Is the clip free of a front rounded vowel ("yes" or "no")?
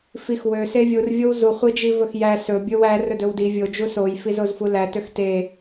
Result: no